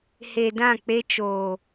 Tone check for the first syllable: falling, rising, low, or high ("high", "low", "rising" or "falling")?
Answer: low